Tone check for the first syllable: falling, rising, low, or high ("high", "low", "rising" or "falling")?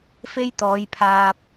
high